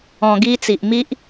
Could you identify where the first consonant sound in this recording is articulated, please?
velar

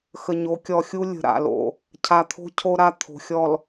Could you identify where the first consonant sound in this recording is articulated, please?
velar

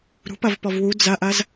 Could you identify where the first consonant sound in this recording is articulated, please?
alveolar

